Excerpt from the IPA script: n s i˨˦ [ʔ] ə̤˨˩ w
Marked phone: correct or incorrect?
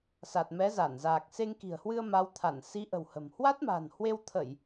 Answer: correct